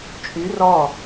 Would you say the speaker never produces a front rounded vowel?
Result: no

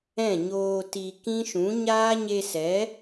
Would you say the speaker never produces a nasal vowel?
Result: no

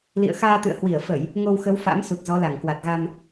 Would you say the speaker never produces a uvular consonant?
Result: yes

